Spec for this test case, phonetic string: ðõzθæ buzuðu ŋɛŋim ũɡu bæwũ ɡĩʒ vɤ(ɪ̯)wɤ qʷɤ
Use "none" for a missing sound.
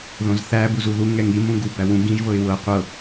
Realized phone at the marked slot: ɪ̯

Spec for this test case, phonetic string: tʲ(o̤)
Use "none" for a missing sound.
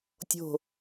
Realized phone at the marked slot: o̤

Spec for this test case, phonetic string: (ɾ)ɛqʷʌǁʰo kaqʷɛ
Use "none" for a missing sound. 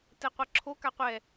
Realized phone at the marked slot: t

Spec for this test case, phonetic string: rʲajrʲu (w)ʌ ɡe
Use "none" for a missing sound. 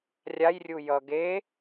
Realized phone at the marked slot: j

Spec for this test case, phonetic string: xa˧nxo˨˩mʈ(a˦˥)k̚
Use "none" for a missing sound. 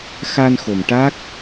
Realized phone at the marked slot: a˦˥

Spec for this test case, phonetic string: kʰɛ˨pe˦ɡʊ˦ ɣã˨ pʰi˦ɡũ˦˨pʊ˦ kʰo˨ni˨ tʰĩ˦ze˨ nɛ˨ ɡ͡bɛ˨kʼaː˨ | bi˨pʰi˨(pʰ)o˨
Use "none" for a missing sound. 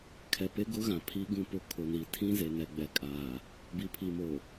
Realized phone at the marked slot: m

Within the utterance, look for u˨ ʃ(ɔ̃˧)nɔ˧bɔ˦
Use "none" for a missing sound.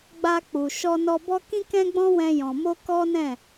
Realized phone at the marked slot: ɔ˧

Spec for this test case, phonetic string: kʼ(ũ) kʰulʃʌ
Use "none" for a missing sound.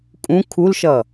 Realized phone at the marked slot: ũ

